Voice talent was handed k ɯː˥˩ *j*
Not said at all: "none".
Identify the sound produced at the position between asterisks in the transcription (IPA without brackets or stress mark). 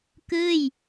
j